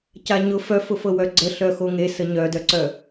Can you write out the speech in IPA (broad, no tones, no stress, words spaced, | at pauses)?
caɲʊ fœfʊfɤwœ ɡ͡ǀəɬœ xoŋe səɲœdœǀœ